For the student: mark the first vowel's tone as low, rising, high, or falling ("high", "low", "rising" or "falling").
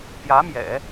rising